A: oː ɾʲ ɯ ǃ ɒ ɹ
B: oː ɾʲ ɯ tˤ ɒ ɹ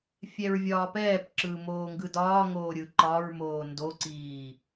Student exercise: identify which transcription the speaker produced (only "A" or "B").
A